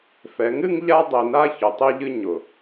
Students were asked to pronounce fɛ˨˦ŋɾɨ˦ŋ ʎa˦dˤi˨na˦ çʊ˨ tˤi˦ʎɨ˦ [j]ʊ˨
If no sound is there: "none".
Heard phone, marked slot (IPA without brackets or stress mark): ɲ